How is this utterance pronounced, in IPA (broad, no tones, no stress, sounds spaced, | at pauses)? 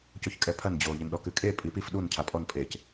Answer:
c o ç kʼ ɛ pʰ ɐ n d͡ʑ o ʎ e n ɗ ɔ k ɨ kʼ e pʼ i p i f ɗ u n cʰ a pʼ ɔ n pʼ e c